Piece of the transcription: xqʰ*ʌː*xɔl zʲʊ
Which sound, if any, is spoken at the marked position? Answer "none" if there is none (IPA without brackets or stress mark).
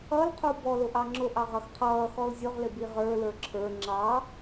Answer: ʌː